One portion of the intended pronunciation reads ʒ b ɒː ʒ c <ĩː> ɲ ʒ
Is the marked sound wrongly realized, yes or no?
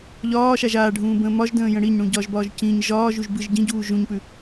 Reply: yes